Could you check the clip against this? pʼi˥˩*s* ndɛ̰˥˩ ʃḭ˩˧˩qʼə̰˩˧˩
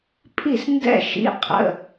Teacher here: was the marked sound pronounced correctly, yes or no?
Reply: yes